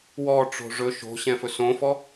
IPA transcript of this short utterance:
w ɔ ʈ͡ʂ o̤ ʐ ɵ ʃ o̤ ɕ ɛ̃ f ɵ s õ f ɔ

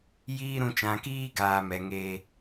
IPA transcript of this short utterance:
j iː˦ ɾ ũ˧ t͡ʃ ã˨ k iː˧ ɡ aː˧ m ɛ˨ ŋ eː˧

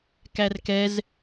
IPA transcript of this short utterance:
k æ r k ɛ z

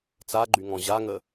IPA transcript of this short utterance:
t͡s a ɡ͡ǃ y ŋ ɔ̃ ʑ a ŋ ə

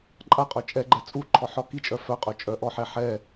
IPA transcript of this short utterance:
ǃʼ a qʼ œ t͡ʃʼ ɛ ɡ͡ǃ ɛ t͡sʼ u ǃʰ ɔ ħ ɔ k i t͡ʃʼ œ f œ qʼ œ t͡ʃʼ œ ʔ ɔ ħ ɛ ħ ɛ

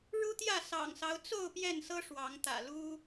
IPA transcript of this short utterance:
ɻ u˦ t̪ j ä˥˨ s ɑ̰˨˩ ŋ s ɑ˦ ʊ̯ t͡s o˥˨ ʊ̯ p j ɛ˥˨ n s ɤ˦ ʂ w ɑ˨˦ ŋ t̪ ä̰˨˩ l u˦

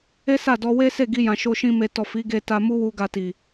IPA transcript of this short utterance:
e˦ s a˦˨ d ɔ˧ w e˦ s e˦˨ ɡ i˧ j ã˨ ʃ o˧ ʃ ĩ˧ m e˨ t ɔ˨ f i˨˦ ɡ e˧ t a˧ m u˦ w u˧ ɡ a˧ t i˨

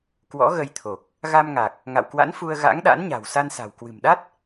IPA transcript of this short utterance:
k w ɔ̰˧˥ ɣ ə˧ j t̪ʰ o˨˩ k̚ | ɣ a˧ m ŋ a˨˩ k̚ | ŋ a̰˧˨ w k w a̰˧˥ n f u˧ ə̯ ɣ a̰˧˥ ŋ ɗ a̰˧˥ n ɲ a̤˨˩ w s a˧ n s a̤˨˩ w k w ɨ̤˨˩ m ɗ a˦˥ t̚

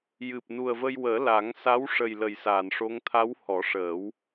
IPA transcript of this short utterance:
j ɨ˨˩ p̚ n u˨˩ ə̯ v ə˧ j w əː˨˩˦ l a˨˩˦ ŋ s a˧˥ w ʂ ə˨˩ j l ə˨˩ j s a˨˩˨ n ʂ o˧˥ ŋ t̪ʰ a˧˥ w h ɔ˨˩˦ ʂ əː˨˩˦ w

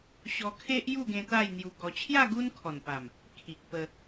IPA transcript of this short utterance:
ɕ ɔ˧ kʰ e˦ ʔ j u˥˧ ɡ ẽ˧ t̪ a˥˧ j n̪ j u˧ ɡ ɔ˧ t͡ɕʰ j a˥˧ ɡ u˦ n kʰ ɔ˨˩ n p a˨˩ m | kʰ i˨ k̚ p ə˧

